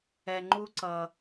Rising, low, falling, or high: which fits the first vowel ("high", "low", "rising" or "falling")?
low